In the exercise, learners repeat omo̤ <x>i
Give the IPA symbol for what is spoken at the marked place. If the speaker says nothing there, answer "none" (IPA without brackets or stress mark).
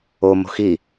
x